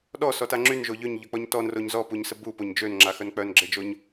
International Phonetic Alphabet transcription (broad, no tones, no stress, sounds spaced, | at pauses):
ɗ ɔ s ɔ t a ŋ͡ǁ y n ʒ o ʎ ø ɲ ʎ œ k͡p ɔ ɲ t ɔ n r o ɲ z ɔ p u ɲ s ə b u p o ɲ d͡ʒ ø n ŋ͡ǁ a x œ n k͡p œ n ɡ͡ǁ e d͡ʒ o ɲ